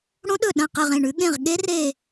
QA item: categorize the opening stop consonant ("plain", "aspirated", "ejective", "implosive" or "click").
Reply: implosive